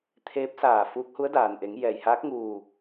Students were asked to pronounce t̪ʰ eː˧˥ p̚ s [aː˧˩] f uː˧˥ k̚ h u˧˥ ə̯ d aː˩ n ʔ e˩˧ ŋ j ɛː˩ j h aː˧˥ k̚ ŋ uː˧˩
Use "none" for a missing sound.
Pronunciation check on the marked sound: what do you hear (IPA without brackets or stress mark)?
aː˧˩